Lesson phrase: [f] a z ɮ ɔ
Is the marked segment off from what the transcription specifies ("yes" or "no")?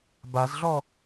yes